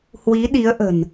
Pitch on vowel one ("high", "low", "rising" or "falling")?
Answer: rising